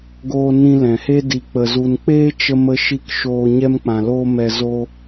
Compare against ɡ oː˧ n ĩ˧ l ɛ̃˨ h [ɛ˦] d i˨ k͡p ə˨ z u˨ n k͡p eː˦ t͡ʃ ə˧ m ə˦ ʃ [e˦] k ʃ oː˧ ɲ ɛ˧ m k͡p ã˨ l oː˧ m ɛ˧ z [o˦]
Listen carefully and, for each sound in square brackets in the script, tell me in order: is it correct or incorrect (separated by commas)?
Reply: incorrect, incorrect, correct